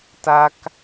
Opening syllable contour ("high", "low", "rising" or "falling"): high